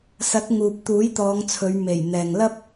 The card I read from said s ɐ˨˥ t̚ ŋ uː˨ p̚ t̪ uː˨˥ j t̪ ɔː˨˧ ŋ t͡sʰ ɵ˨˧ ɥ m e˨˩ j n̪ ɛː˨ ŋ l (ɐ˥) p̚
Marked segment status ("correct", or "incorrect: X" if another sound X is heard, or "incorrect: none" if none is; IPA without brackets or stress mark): correct